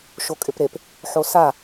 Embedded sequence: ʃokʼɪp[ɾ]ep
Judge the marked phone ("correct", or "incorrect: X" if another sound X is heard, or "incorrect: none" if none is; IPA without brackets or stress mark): correct